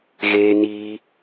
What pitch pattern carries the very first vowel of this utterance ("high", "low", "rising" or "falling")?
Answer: high